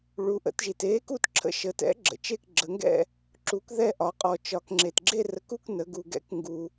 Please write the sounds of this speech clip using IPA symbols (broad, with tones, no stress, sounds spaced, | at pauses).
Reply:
ɭ u˩˧ ʔ ə̰˩˧ t ʒ i˩ t e˨˥ k u˥˨ t ǁʰ ə̰˨˥ ʃ ə˩˧ t ɛ̰˨˥ ɡ͡ǁ ə̰˩ t͡ʃ e˥˨ k ɡ͡ǁ ə˩˧ ŋ ɡ ɛ̰˥˨ | ǁ u˨˥ k ð ɛ˥˨ ʔ ɒ˩˧ qʼ ɔ˩ t͡ʃ ɒ˩ k ŋ͡ǁ e˩ t ɡ͡ǁ e˥˨ r ə˨˥ k u˥˨ k n ə˩˧ ɡ u˩ ɡ ɛ̰˨˥ k ŋ ɡ u˩